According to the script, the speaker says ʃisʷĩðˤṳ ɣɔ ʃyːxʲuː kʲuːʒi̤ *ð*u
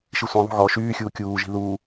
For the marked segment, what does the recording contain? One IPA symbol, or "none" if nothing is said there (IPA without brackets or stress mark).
ð